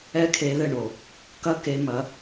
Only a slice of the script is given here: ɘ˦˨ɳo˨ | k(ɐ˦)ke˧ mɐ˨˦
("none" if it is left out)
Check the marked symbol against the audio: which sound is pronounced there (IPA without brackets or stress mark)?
ɐ˦